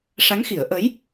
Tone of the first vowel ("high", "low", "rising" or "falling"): rising